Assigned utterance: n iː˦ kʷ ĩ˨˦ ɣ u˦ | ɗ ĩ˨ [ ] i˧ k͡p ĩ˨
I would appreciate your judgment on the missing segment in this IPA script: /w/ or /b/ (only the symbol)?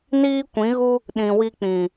w